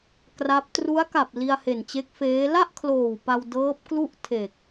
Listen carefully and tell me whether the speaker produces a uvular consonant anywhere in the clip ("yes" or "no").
no